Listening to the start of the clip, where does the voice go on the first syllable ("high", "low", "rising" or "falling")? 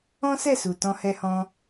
high